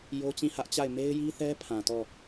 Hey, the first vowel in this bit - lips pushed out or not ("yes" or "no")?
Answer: yes